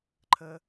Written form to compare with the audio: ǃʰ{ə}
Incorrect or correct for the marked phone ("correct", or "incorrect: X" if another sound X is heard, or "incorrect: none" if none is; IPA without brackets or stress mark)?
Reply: correct